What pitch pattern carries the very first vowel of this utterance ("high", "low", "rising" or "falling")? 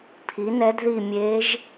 rising